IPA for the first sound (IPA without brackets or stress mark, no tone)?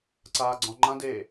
ǀ